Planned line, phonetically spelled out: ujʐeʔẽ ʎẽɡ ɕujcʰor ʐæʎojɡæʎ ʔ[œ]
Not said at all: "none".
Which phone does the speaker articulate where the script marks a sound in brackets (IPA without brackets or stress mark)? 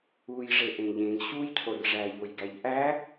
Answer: æ